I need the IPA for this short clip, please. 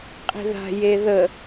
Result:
qʼ i̤ ð a̤ j e ð ə

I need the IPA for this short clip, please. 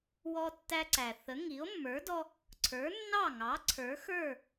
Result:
w ɔ˧ tː æ˧ ǀ æ˩ θ ə˩˥ ŋ i˩˥ o̯ mː ə˞˩˥ d ɔ˧ | ǀʰ ə˞˩˥ nː ɑ˥˩ ŋ ɑ˩˥ ǀʰ ə˞˩˥ x ə˞˥˩

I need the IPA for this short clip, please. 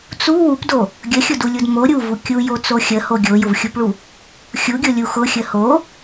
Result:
t͡s u w u p d o | ɡʲ ə xʲ ʊ d u lʲ u d m o ɾʲ u v u kʲ u j o t͡s o xʲ ə h o ɡʲ o j ʊ v xʲ u p ɭ u | xʲ u ɡʲ o lʲ u x ʊ xʲ ə h o

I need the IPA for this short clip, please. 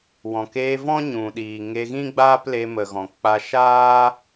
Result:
w ɔ̃˨ k eː˧ v ɔ̃˦ ɲ ũ˨ ɗ iː˨ ŋ e˧ ɣ ĩ˦ ɡ͡b aː˦ p l e˧ m ə˨ ɣ ɔ̃˨ k͡p a˧ ʃ aː˦

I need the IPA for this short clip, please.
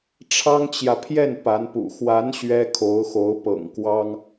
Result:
ʈ͡ʂʰ ɑ˥ ŋ t͡ɕ j ä˨ pʰ j ɛ˥˩ n p a˧˥ n p ṵ˨˩ x w a˧˥ n ɕ ɥ ɛ˥ kʰ o˧˥ ʊ̯ x o˧˥ ʊ̯ p ɤ̰˨˩ ŋ k w ɑ˥ ŋ

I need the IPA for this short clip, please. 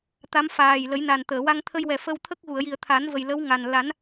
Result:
t̪ a˧˥ m f aː˨˩ j l ə˨˩˦ j n a˨˩ n t̪ əː˨˩˨ w a˧ ŋ t̪ʰ ə˧ j w ɛ˨˩ f ə˧ w t̪ʰ ə˦˥ k̚ ɣ u˨˩˨ ə̯ j i˨˩ ə̯ t̪ʰ a˨˩˦ n v ə˨˩ j l ə˧˥ w ŋ a˨˩ n l a˨˩˦ n

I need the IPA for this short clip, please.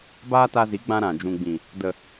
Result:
b aː˦ t a˧ z i˨˦ ɡ͡b ã˧ ɾ ã˨ d͡ʒ ũ˨ ɡ͡b ĩ˨ | d ə˨

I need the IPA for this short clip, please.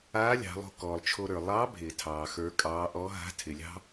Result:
aː˧˥ lʲ ɑ̤˩˧ lˠ o̤˧ k ɔː˩ lˠ t͡ʃʰ o˧ ɾ ə˞˩ lˠ ɑ˧˥ bʱ ɪː˩ tʰ ɑː˩ x ə˞˩˧ kʼ ɑː˩˧ ʔ ɔ˧˥ ɦ a̤˧˥ tʰ ɪ˩ lʲ ɑ̤˥

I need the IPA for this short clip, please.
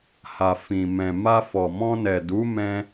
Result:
h a˨ f ĩ˨ m ɛ̃˨ m a˧ f ɔ˨ m ɔ̃˧ n ɛ˨ d u˨˦ m ɛ̃˧

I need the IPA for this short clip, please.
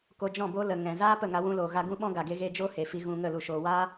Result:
k o˧ d͡ʒ ɔ̃˦˨ b o˦ l ə˨ ŋ ɛ̃˨ z aː˦ p ə˦˨ ŋ a˧ w ũ˧ l oː˨ ɣ a˧ ɡ ũ˦ ɓ ɔ̃˦ ɡ a˨ ɡ e˦ ɣ e˦ d͡ʒ o˦ h e˨ f i˧ ɣ ũ˧ ŋ ə˦˨ l u˨ ʃ oː˨ w aː˦

